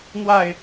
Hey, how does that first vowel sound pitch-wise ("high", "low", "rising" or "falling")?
falling